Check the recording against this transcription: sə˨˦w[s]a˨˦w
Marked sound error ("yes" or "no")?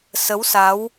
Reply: no